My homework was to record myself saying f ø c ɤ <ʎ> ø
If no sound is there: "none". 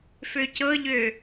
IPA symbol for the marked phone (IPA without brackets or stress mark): ʎ